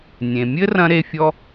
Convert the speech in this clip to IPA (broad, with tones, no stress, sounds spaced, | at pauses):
nʲ ẽ˩ mʲ ɘ˥ r ɐ̃˥ ɾ e˦ fʲ ɔ˥